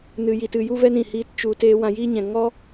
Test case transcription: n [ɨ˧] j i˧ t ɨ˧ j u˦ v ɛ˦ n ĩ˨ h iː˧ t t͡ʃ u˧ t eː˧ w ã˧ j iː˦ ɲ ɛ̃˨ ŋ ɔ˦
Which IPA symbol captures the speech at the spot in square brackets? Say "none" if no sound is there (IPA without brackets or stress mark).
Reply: ɨ˧